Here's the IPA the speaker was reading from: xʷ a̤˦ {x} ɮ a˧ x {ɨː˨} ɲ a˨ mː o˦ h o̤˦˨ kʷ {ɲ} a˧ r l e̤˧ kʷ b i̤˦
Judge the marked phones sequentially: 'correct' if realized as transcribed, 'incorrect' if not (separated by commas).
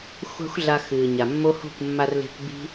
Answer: incorrect, correct, incorrect